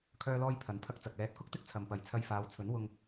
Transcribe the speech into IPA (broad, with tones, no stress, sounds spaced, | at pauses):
kʰ œː˧ l ɔː˧ j pʰ ɐ˨˥ n pʰ ɐ˧ k̚ t͡s ɐ˨ k̚ l ɛː˧ t̚ k ʊ˥ k̚ t̪ ɪ˥ k̚ t͡sʰ ɐ˨ m p ɐ˨˧ j t͡sʰ ɐ˧ j f aː˨˧ w t͡sʰ ɵ˨˥ n w ʊ˧ ŋ